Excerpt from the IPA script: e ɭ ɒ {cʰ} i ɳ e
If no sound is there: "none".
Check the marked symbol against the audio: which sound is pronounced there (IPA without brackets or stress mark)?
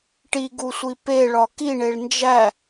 k